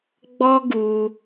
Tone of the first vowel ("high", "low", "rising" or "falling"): high